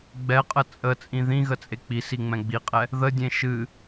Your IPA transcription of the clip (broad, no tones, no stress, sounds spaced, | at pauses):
ɡ͡b ɛ qʼ ə t͡sʼ ə t͡sʼ ĩ ð ĩ ɣ ə t͡sʼ e k͡p i s i ŋ͡m ɛ̃ ɡ͡b i qʼ ɛ | ð ə dʲ ẽ ʃ ɨ